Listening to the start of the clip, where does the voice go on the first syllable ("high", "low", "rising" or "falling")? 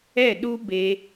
falling